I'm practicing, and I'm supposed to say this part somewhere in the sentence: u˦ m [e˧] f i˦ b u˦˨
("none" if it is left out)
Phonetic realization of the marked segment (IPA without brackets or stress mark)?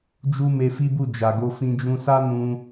e˧